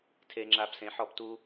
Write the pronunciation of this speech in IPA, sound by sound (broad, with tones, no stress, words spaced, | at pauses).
tʰe˦ŋ͡ǁa˦b sẽ˧ħɔ˦˨btu˦